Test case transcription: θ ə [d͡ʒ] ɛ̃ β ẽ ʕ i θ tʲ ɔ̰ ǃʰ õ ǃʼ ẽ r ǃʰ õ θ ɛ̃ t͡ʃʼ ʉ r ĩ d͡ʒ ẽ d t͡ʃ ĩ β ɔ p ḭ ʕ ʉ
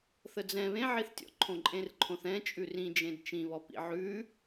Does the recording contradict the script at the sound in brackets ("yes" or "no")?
yes